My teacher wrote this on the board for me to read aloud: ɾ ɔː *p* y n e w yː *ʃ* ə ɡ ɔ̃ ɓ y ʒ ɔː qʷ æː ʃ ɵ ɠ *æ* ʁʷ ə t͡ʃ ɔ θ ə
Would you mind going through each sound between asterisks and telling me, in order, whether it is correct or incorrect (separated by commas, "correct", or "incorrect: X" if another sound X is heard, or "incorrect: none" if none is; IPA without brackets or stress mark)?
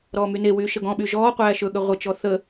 incorrect: m, correct, incorrect: ə